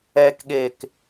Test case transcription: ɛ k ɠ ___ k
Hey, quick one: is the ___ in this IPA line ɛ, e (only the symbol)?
e